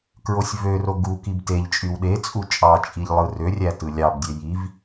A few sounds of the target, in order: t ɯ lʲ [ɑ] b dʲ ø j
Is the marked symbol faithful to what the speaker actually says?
yes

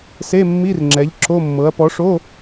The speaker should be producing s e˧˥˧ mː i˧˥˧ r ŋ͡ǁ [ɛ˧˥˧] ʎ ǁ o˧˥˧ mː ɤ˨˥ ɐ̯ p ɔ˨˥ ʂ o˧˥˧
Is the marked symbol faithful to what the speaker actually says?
no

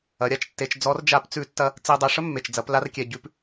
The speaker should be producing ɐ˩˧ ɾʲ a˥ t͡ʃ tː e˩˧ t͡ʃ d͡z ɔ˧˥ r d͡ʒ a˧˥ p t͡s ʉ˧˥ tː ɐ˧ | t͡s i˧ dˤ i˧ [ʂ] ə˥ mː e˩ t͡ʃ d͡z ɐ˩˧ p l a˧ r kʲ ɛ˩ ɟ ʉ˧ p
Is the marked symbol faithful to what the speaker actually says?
yes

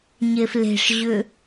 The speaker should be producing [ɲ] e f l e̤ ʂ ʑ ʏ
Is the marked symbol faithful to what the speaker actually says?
yes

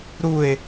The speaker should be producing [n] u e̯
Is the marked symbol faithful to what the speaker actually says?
no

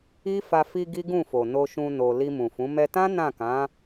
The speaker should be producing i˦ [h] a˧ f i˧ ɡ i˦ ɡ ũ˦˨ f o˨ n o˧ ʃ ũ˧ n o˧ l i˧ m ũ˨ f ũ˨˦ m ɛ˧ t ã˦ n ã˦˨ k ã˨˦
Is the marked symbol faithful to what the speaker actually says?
no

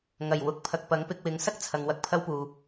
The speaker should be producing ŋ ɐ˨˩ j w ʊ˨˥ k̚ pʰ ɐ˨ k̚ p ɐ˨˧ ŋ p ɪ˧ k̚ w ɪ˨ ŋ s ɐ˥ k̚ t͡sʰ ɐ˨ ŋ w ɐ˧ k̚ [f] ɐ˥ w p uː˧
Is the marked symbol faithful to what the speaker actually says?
no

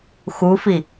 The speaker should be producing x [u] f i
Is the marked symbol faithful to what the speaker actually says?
yes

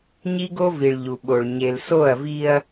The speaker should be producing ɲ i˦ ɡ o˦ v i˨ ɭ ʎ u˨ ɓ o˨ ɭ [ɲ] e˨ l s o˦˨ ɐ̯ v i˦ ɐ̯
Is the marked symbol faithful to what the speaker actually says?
yes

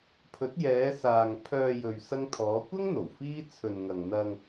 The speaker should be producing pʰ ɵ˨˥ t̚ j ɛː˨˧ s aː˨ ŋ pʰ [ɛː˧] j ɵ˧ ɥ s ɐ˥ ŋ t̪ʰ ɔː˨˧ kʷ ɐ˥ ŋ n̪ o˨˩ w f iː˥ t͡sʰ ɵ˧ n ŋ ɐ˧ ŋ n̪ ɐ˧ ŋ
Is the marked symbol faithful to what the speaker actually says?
no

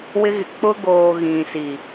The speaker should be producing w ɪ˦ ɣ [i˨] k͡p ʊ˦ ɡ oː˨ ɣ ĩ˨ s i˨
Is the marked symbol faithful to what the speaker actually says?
no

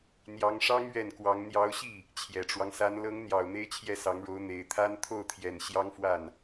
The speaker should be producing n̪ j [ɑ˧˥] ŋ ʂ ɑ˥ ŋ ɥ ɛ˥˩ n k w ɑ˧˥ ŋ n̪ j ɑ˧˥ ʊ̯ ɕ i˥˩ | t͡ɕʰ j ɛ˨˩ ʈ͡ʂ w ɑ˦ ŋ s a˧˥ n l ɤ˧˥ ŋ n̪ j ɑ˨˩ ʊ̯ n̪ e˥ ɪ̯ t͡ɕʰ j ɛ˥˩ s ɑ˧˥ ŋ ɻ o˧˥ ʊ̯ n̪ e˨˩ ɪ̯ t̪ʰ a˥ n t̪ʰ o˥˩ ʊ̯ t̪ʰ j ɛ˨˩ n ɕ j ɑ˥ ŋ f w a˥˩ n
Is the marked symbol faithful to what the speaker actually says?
yes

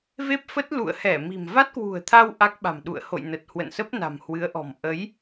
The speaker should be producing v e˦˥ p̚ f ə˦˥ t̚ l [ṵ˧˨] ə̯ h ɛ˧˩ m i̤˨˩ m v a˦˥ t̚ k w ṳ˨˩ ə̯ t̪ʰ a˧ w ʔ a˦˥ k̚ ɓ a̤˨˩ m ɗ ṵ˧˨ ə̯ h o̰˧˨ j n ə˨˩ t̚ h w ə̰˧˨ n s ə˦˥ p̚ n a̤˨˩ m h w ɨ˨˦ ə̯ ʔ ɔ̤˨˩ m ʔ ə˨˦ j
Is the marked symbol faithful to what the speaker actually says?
yes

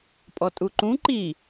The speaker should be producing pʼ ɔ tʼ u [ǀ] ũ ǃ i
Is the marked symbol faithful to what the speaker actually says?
no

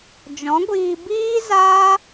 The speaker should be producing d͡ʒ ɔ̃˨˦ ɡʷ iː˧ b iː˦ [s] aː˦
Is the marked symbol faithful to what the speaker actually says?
no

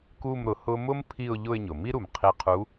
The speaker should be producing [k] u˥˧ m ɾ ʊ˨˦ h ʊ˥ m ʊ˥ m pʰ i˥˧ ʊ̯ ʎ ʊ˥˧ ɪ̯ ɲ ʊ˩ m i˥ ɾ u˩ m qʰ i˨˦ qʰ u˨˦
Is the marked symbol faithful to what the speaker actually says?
yes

